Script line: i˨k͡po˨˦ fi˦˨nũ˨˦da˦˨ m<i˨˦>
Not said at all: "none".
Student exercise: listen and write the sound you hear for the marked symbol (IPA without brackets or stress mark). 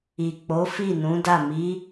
i˨˦